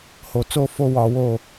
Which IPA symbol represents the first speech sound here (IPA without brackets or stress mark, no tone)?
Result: h